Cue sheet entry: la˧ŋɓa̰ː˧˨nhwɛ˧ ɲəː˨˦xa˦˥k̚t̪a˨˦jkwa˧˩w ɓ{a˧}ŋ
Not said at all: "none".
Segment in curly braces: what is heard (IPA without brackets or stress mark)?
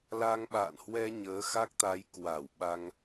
a˧